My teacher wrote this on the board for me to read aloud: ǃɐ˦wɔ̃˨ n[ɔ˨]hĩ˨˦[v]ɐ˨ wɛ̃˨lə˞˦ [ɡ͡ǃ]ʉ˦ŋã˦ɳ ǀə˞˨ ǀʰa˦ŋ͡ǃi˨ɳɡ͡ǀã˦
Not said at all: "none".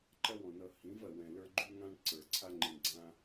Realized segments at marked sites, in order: ʌ˨, v, ɡ͡ǃ

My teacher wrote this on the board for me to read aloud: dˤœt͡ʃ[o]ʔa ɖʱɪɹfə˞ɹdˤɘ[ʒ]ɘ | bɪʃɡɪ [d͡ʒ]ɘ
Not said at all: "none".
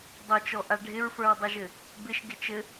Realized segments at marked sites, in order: ɔ, ʒ, t͡ʃ

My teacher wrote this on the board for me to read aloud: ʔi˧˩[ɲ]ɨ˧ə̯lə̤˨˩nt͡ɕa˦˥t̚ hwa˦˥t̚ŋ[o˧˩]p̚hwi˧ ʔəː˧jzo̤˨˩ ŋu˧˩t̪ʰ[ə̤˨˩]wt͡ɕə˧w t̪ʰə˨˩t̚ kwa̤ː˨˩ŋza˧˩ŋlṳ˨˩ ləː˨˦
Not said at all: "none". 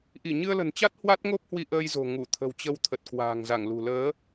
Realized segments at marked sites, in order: ɲ, o˦˥, ə̤˨˩

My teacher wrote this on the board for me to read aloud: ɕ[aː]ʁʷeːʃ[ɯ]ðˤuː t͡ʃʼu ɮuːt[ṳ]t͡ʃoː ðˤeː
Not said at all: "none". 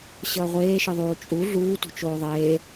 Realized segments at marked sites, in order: ʌː, ɯ, ṳ

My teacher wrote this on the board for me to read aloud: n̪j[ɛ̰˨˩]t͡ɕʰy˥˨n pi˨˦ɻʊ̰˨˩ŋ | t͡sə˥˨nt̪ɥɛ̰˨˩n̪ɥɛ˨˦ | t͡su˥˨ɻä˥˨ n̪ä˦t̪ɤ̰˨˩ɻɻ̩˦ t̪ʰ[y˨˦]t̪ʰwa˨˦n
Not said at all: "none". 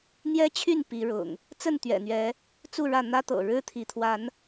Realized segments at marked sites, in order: ɛ˦, i˨˦

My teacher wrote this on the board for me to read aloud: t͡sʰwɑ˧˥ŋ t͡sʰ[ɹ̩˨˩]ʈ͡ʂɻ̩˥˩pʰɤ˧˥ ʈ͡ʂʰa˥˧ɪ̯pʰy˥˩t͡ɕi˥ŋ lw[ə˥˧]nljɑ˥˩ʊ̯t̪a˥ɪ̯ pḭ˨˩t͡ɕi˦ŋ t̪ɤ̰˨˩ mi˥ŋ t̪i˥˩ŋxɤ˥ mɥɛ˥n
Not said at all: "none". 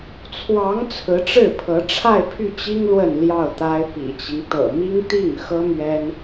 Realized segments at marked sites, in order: ɹ̩˧˥, ə˥˧

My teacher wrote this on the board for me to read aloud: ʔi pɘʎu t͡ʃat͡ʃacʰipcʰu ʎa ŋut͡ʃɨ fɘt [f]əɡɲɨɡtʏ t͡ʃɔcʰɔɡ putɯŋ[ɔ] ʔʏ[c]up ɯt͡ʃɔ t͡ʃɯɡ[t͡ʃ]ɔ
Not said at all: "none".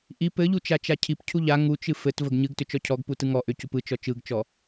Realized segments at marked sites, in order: v, ɔ, c, t͡ʃ

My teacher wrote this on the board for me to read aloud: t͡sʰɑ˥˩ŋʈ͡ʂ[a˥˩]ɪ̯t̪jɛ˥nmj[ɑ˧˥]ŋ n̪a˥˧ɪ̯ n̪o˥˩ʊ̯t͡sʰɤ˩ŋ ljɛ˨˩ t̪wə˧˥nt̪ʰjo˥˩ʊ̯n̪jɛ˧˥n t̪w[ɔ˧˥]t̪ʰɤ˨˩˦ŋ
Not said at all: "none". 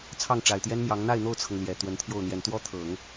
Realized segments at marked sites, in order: a˨˩, ɑ˧˥, ɔ˥

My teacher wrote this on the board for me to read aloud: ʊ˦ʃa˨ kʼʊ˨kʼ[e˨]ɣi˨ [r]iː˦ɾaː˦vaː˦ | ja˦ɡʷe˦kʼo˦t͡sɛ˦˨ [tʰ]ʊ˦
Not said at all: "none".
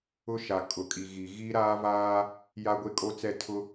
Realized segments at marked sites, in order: i˨, ɣ, tʰ

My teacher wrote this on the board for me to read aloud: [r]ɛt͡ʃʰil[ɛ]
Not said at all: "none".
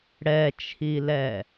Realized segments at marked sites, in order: ɽ, ɛ

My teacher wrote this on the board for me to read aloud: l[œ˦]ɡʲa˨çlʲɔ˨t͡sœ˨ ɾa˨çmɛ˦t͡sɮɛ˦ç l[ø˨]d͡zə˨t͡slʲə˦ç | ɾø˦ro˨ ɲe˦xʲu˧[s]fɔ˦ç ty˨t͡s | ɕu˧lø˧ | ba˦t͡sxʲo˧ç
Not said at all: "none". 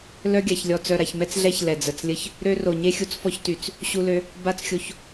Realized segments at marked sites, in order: œ˧, ɛ˨, t͡s

